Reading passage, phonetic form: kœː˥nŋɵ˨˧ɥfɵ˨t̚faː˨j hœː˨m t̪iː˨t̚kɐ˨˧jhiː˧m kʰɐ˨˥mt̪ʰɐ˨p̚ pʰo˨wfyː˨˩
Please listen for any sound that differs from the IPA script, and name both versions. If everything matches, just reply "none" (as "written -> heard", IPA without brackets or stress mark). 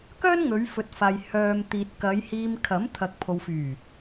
p̚ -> k̚